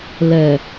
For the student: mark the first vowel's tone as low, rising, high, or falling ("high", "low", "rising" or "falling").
low